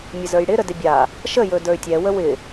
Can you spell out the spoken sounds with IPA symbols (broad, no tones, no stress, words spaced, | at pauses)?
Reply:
mʲəzə˞jɽɪ ɾədɪbʲa | ʃə jɵdə˞y̯tʲɛ wəwɪ